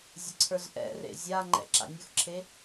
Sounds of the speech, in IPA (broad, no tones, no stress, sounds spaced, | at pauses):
zʲ ə ǀʰ ə˞ z ʔ ɛ̰ r ḛ zʲ a ŋ͡ǃ ɛ̰ ǁ a̰ nʲ ʊ x ǁʰ e